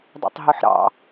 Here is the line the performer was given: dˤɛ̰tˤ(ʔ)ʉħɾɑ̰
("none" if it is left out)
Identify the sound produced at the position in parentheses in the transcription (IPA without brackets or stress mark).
ɦ